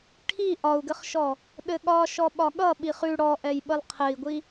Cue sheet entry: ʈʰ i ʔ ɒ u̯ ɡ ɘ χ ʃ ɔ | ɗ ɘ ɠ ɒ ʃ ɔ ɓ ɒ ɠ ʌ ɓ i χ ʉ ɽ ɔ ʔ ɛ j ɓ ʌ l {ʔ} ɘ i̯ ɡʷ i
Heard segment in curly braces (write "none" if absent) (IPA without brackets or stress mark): qʰ